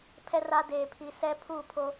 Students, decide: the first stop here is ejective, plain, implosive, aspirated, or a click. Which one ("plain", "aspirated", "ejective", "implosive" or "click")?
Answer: aspirated